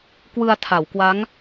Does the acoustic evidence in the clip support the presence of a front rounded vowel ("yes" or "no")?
no